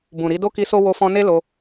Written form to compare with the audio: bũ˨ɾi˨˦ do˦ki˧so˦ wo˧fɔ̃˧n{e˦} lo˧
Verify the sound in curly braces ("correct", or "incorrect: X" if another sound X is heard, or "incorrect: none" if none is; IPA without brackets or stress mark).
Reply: correct